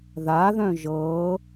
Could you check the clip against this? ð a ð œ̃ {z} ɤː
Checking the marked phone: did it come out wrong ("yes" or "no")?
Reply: yes